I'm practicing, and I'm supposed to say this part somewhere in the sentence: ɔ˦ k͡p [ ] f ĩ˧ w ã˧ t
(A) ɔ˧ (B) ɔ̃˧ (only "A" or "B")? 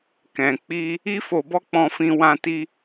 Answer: B